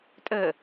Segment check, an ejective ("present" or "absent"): present